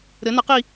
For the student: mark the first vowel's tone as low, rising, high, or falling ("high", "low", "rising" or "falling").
rising